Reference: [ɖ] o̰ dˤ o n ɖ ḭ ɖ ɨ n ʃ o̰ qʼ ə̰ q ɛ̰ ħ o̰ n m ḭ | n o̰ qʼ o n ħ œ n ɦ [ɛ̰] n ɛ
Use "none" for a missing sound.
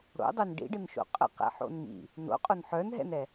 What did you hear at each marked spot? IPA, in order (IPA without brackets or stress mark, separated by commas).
ɽ, ɛ̰